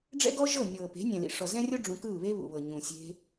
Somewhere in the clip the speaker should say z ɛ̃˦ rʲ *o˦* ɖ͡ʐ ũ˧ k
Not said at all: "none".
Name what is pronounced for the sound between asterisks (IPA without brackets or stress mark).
o˦